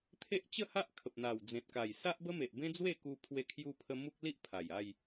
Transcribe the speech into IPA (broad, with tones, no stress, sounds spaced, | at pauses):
t̪ʰ e˦ ʔ t͡ɕ ə˥˧ h a˦ ʔ kʰ ə˨ p̚ n̪ a˨˩ w d͡z ẽ˨ t̚ k a˨˩ j s a˦ ʔ b ə˦ m e˨ ʔ b ẽ˦ d͡z w e˥˧ k u˧ pʰ w e˧ kʰ j u˧ pʰ ə˧ m u˦ k̚ l i˦ ʔ pʰ a˨˩ j a˥˧ j